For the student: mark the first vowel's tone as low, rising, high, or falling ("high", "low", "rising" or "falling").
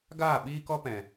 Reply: falling